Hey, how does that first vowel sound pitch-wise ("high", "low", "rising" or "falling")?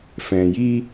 low